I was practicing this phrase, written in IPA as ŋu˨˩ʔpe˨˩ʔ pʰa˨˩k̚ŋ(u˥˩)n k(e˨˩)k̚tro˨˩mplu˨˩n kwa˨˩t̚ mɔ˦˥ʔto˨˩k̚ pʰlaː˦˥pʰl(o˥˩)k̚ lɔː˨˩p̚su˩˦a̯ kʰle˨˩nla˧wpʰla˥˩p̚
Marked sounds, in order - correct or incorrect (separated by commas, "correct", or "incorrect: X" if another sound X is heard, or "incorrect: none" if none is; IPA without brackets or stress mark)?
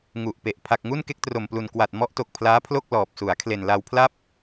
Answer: correct, incorrect: e˥˩, correct